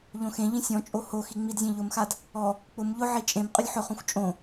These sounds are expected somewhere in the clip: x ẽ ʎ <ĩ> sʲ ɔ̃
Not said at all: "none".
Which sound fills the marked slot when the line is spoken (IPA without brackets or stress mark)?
ĩ